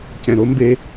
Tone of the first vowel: low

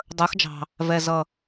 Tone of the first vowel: rising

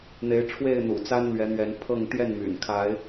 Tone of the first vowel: rising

